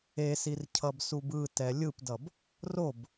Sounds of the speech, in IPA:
e s i r cʰ ʌ b s u b ɯ t ɛ lʲ ɯ p d ʌ b | r o b

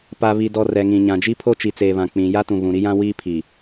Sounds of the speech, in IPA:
p a˨ β i˨ d ɔ˨ r ɛ˨ ŋ ĩ˨ ɲ ã˨ d͡ʒ i˦ pʰ o˦ t͡ʃ i˨ t͡s eː˨ β ã˨ k͡p ĩ˨ j a˦ t ũ˨ β ũ˨ ɾ i˦ j ã˦ w iː˦ pʰ i˨

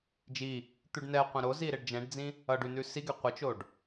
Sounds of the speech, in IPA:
d͡ʒ i | t̪ ʉ ɖ n ɛ qʷ ɛ̃ ɾ o z i ɾ e ɖ d͡ʒ ɛ̃ ɖ d͡z ĩ | ʌ ɖ ʉ n ʉ s i ɡ ɛ qʷ ɪ t͡ʃ o ɖ

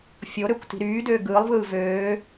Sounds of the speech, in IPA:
fʲ o ɾ ø kʷ t i̤ ɾ yː d øː ɡ ɯː lˠ v ɯː v øː

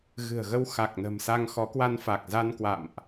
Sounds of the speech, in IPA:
ɣ ɨ̤˨˩ ə̯ ɣ ə˧ w x a˨˩ k̚ n ə̤˨˩ m s a˧ ŋ x ɔ˨˦ k w a˧ n f a˨˩ k̚ z a˧ n k w a̰˧˨ m ʔ

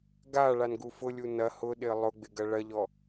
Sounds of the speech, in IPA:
ɡ a ɭ a n ɡ u f ʊ lʲ u n ɐ h ʊ ɗ ɪ ə̯ lˠ ʊ ɡ͡b ɪ ɡ ɐ ɭ ɐ ʎ ɔ

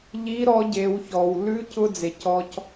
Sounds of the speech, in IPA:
ʎ i˧˥ ɾ ɔ˧˥ ɟ e˩˧ w ç ɔ˩ w l ʉ˧˥ c ʊ˧ d͡z e˩ c ɔ˧ c

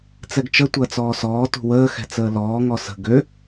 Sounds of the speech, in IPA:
t͡s ɛ ɡ t͡ʃ ə tʷ ɐː t͡s ɔː s ɔː t ṳ w əː x ɛ̤ t͡s əː l ɔː ŋ ɔ s ə̤ ɡ ø

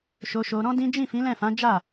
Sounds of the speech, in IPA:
ʃ o˧ ʃ o˧ ɾ ɔ̃˦ d ĩ˦ d͡ʒ ĩ˦˨ f ĩ˨˦ l ɛ̃˦˨ f ã˨˦ d͡ʒ a˦˨

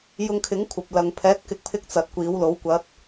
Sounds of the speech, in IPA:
j ʊ˧ ŋ kʰ ɪ˨˥ ŋ kʷʰ ɐ˨ p̚ l ɐ˨ ŋ pʰ ɛː˨˥ t̚ k ɪ˨˥ k̚ pʰ ɪ˧ k̚ t͡s ɐ˨ t̚ kʷ iː˨˧ w l o˨˥ w kʷ ɐ˧ t̚

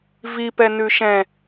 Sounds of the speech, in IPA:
v i p ɛ n ʉ ʃ ɛ̃

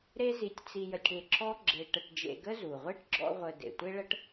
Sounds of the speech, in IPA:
ɾ e˥ z i˧ tʲ t͡s i˧ j ə˧ tʲ ɽ e˧ ǁ ɔ˥ ɡ͡ǁ e˧ ʈ ə˧ ʈ d͡ʒ ḛ˧ ɡ ə˥ z u˩ ʁʷ e˥ ʈ ɡ͡ǁ ɔ̰˥ ʁʷ ə˧ d ḛ˩ tʷ e˥ ɭ ə˥ ʈ

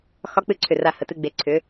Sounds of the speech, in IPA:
x ɒ˧˥ k͡p ɨ˧˥ ǀʰ ʏ˧˩ r a˧˩ h ə˧˩ t ɨ˧ ɡ͡b e˧ ǀʰ ʏ˧˥

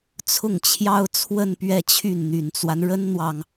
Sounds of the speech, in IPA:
t͡sʰ ʊ˥˩ ŋ t͡ɕʰ j ɑ˥ ʊ̯ t͡sʰ w ə˥˧ n p ɥ ɛ˥˧ t͡ɕʰ y˥˩ n n̪ y˨˩ n t͡s w a˦ n ɻ ə˥ n n̪ w ɑ˨ ŋ

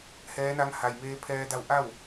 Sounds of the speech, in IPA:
h ɛː˧˥ n a˧˥ ŋ h a˩ j m eː˧ pʰ ɛː˧ d a˧˥ w ʔ a˥˨ w

